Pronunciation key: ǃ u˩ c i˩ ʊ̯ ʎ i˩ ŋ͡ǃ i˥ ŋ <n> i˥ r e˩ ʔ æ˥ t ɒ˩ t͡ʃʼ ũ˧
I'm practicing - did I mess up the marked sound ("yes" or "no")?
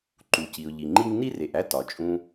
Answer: no